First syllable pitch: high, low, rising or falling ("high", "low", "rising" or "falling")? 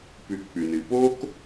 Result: low